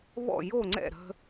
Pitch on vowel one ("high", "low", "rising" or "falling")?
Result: falling